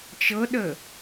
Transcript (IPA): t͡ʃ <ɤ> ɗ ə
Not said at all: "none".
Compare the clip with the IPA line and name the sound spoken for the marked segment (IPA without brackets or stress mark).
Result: ɤ